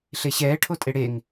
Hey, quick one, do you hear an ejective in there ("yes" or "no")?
yes